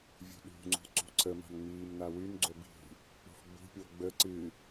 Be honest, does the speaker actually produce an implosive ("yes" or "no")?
yes